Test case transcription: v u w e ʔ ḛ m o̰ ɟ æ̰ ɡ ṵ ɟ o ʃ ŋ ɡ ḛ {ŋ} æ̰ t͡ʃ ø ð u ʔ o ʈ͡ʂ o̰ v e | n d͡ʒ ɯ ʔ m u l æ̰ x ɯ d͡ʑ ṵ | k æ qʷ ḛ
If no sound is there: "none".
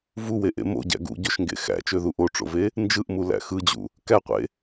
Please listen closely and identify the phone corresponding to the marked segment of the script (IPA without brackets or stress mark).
x